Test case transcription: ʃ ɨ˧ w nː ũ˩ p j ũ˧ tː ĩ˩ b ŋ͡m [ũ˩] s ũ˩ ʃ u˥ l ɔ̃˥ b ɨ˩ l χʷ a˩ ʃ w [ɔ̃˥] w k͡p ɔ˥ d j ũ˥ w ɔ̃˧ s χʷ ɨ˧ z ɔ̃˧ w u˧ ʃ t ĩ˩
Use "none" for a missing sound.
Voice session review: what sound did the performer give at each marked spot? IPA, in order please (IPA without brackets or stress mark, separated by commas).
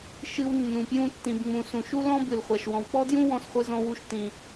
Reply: ũ˩, ɔ̃˩